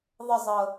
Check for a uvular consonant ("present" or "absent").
absent